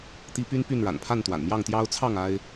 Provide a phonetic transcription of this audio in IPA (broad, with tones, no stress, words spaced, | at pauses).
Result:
t̪i˦ py˦n py˥˨nɻa̰˨˩npʰa˥˨nt̪wa̰˨˩n mjɑ˥˨ŋt̪jɑ˦ʊ̯ t͡sʰɑ˥˨ŋ a˦ɪ̯